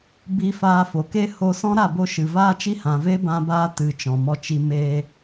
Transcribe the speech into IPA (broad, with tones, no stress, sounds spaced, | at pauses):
b i˧ f aː˧ f o˨ k e˦ h o˧ s ɔ̃˦ ɾ a˦˨ b o˧ ʃ ɨ˨ v aː˦ t͡ʃ i˦ h ã˨ v e˦ b ã˦ b aː˦ t ɨ˨ t͡ʃ ɔ̃˨ m ɔ˧ t͡ʃ i˧ m eː˧